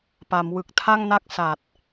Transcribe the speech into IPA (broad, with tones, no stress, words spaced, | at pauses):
pa˩˦mwɯ˨˩k̚ tʰa˥˩ŋna˥˩k̚ sa˨˩t̚